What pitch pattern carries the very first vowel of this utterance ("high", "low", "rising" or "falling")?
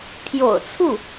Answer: low